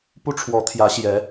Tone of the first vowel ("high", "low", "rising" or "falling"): high